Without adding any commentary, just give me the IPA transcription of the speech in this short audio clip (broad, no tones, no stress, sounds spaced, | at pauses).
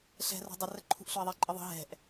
ɬ ɛ̤ r o̤ dˤ ə r ə ǃʰ ṳ ʔ ɬ ʊ ɪ̯ ðˤ i ǃʼ ə ðˤ ə̤ ɦ ɛ̤ ʔ